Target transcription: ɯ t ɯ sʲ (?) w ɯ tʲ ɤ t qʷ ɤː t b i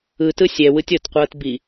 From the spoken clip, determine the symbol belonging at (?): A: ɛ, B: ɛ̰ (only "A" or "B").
A